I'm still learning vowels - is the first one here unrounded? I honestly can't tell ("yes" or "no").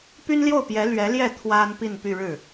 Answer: no